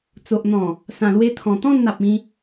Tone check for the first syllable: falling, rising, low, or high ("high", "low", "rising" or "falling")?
low